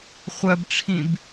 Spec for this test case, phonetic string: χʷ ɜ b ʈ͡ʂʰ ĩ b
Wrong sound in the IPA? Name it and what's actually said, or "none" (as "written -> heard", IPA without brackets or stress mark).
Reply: none